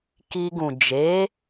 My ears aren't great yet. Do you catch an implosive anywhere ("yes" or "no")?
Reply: no